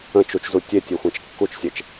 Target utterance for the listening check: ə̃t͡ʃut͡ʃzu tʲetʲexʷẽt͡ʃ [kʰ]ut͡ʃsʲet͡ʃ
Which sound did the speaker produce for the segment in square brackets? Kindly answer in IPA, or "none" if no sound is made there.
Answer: kː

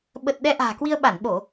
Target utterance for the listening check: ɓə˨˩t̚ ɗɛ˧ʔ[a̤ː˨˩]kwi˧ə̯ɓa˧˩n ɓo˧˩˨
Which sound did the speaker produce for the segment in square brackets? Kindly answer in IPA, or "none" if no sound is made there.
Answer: a̤ː˨˩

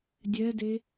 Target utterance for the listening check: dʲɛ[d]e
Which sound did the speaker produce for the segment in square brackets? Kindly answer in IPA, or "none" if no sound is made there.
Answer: d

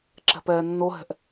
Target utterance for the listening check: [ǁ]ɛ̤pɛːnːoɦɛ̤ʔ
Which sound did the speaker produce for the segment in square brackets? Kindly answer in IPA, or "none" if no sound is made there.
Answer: ǁ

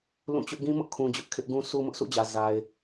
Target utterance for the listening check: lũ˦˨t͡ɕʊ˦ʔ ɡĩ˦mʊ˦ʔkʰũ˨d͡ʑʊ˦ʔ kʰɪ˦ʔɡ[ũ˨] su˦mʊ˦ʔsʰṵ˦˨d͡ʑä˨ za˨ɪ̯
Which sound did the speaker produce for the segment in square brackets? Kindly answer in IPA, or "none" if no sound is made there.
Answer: ũ˦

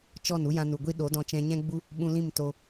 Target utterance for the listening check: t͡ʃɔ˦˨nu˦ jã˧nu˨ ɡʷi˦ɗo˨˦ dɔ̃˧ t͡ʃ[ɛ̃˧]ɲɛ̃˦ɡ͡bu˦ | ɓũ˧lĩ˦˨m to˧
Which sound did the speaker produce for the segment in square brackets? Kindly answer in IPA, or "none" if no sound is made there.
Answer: ɛ̃˧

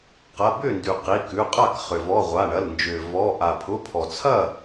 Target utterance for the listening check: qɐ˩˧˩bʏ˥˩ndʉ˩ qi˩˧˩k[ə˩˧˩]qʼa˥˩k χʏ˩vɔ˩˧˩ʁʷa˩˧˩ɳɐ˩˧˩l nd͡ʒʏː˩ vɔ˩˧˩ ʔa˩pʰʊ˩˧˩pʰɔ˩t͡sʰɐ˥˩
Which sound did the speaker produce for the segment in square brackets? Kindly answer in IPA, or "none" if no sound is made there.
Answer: ʉ˩˧˩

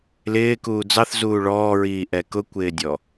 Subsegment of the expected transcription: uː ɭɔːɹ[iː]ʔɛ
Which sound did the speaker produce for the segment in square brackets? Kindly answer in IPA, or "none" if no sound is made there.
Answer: iː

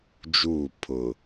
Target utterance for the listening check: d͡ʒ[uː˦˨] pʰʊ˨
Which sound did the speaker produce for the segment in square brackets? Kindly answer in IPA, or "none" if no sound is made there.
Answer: uː˦˨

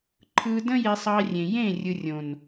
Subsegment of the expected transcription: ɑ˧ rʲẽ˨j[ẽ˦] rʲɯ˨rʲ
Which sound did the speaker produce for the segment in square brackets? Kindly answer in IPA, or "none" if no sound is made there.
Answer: ẽ˦˨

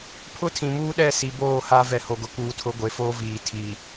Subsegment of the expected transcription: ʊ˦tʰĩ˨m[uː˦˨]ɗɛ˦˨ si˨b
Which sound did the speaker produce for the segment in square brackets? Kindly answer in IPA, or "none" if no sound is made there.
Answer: uː˦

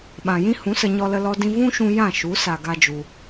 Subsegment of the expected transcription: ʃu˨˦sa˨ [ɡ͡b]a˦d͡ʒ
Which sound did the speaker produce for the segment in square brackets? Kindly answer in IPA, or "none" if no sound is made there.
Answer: ɡ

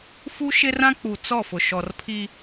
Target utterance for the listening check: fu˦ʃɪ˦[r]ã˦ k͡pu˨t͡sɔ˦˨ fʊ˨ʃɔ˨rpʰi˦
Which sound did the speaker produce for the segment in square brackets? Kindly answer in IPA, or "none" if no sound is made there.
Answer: r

